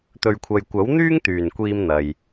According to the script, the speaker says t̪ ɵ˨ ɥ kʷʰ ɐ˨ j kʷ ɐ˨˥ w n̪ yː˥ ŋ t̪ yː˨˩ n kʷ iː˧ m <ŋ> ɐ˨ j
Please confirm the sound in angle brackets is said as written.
no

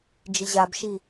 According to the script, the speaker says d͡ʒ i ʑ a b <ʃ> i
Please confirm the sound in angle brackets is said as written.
yes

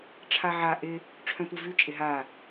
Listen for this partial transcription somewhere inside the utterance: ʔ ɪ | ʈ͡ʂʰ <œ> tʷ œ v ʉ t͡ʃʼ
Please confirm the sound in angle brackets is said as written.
no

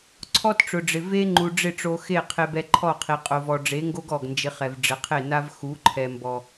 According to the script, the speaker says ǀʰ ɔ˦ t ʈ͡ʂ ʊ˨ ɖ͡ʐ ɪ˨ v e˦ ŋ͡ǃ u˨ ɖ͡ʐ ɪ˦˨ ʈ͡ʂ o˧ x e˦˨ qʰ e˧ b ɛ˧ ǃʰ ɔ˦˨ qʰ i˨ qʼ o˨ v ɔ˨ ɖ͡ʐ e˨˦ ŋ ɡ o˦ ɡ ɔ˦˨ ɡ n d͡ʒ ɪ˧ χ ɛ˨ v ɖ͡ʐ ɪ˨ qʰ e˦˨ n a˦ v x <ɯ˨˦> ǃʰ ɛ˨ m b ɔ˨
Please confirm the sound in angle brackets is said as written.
no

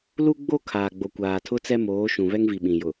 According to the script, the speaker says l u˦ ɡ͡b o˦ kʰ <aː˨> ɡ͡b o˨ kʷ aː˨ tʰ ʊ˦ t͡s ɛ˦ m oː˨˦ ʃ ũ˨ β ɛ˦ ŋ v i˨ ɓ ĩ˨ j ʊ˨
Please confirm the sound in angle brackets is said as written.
yes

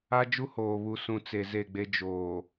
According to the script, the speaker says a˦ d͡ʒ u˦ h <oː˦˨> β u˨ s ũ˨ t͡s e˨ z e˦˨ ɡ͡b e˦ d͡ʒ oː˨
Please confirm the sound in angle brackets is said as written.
no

